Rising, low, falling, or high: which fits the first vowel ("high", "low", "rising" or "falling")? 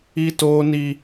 high